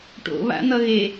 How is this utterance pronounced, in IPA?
ʈ o̰ β a̰ n̪ ʌ ɣ e

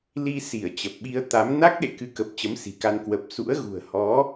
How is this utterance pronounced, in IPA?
l i˧ s i˧˩ ə̯ t͡ɕ ə˨˩ p̚ ɓ i˧ ə̯ t̪ a˨˦ m n a˦˥ k̚ ɗ ḛ˧˨ k ɨ˨˦ k ə˨˩ p̚ t͡ɕ ə˨˦ m s i̤˨˩ k a˧ n k w ə˨˩ p̚ s ṵ˧˥ ə̯ ɣ ṳ˨˩ ə̯ h ɔ˨˦

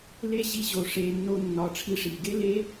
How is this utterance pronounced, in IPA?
l e˦ ʑ i˧ ʑ o˨ ʂ e˨ nː o˧ nː ɒ˨ ʈ͡ʂʰ i˧ ʂ i˨ ɡ e˦ l e˦

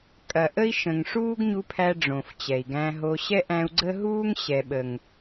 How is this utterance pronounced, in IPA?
kʼ ɐ˨ ʔ ə˦ i̯ ʃ ə̃˨ ŋ ʂ uː˦ ɡ ɲ u˧ pʰ æ˧ ɖ͡ʐ õ˨ f t͡ɕ ɛ˨ i̯ ɡ æ̃˧ ɦ o˧ ɕ ɛ˦ ʔ æ̃˧ u̯ ɡ͡ǀ ə˦ ɦ uː˦ ŋ ɕ ɛ˨ ɓ ə˨ ŋ

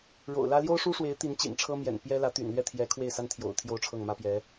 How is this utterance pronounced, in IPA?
ɻ o̰˨˩ ʊ̯ l ä˥ l j o˥ ʊ̯ ʂ u˥ ʂ w e˧˥ ɪ̯ t̪ i˧˥ n t͡ɕ ḭ˨˩ n ʈ͡ʂʰ ɤ˥ m j ɛ̰˨˩ n p j ɛ˥ l ä˧˥ t̪ y̰˨˩ n l ɥ ɛ˥˩ t̪ʰ j ɛ˧˥ kʰ w e˥˩ ɪ̯ s a˥ n t̪ʰ j o̰˨˩ ʊ̯ t̪ʰ j o˥ ʊ̯ ʈ͡ʂʰ ɤ˥˩ ŋ m ä˥ p j ɛ˧˥

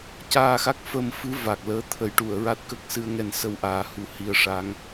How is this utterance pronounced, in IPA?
c aː˧ x a˦˥ k̚ f əː˧ m f ɨ˧˥ v a˨˩ k̚ l əː˧˥ t̪ʰ ə˨˩˦ j ʈ u˨˩˨ ə̯ ɹ a˦˥ t̚ k ə˦˥ k̚ s ɨ˧˥ ə̯ ŋ ɛ˧ n s ə˧ w ʔ aː˨˩˦ h u˨˩˦ h i˧ ə̯ ʂ a˧˥ ŋ

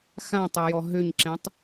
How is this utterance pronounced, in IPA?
x ã tˤ ɤ j ɔ ɦ ø ɲ ǁ ɛ̃ tˤ

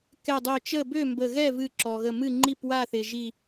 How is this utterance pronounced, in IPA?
k ɛ˧˩ dˤ ø˧˩ t͡ʃ ə˥˨ b ø˥˨ m b ə˧˩ ɣ ɛ˥˨ v ɨ˧˩ ǁ ɔ˩ ɣ ə˧˩ m ɨ˥˨ ŋ͡ǃ i˥˨ p w a˥˨ θ ɪ˩ ʒ i˧˩

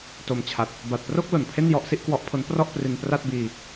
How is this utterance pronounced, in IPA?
t o˧ m t͡ɕʰ a˨˩ t̚ | b a˨˩ t̚ p r o˥˩ k̚ l o˨˩ n pʰ e˥˩ n j ɔ˦˥ ʔ s i˦˥ ʔ k w ɔ˦˥ ʔ pʰ o˦˥ n p r ɔ˥˩ ʔ p r i˧ n p r a˥˩ t̚ b iː˧

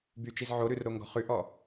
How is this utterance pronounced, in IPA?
b y t͡ʃ i z ʕ o ɾ ʉ r ɾ o ŋ ɡ ɔ̤ χ ʉ ʔ ɔ

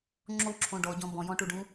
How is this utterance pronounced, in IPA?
ŋ͡ǁ o ǁʰ õ ɖ ɔ ɟ ɔ̃ b ɔ̃ j ɔ̃ ʈ u ɖ ũ

